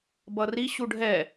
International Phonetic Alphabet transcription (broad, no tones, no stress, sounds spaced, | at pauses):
b ʌ r i ɕ u ɖʱ ɛ